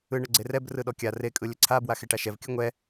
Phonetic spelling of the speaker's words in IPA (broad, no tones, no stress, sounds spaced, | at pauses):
ɯ ɳ ə ɡ͡ǀ e r ɛ b r ɯ ɗ ɔ kʲ a r e kʼ ɯ lʲ ə ǀʰ a b w a x e ʈ a ʃ ɛ v kʲ ɯ ŋʷ ɛ